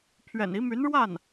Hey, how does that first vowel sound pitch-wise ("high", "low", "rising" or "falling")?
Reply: low